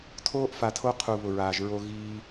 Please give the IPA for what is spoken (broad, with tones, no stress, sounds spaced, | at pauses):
tʰ oː˦ ʔ f a˨ tʰ o˦ qʰ u˨ β ʊ˨ ɹ aː˨ ʒ ɹ o˦ ɣ iː˦